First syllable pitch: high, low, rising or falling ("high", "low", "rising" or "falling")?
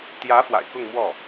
rising